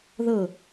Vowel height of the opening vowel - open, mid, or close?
mid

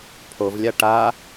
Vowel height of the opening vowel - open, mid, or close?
mid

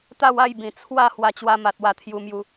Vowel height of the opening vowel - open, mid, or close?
open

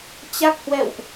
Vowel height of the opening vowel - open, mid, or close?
open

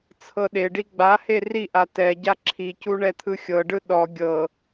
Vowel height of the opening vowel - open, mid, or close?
mid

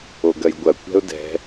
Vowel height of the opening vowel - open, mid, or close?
mid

